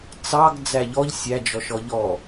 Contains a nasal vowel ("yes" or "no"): no